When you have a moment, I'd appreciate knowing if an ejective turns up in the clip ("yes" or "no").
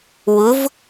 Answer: no